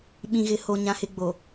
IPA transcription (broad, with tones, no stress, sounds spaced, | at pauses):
ɓ ĩ˨ ɣ ɪ˨ h o˨ ɲ ã˨ h ɪ˨ ɡ͡b o˨